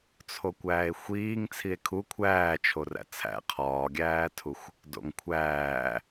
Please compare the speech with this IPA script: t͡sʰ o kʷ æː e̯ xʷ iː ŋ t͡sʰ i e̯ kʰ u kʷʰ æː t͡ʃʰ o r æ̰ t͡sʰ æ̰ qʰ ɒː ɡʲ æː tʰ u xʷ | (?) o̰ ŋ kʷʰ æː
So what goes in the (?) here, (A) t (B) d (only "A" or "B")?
B